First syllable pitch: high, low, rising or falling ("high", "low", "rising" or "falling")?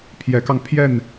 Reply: rising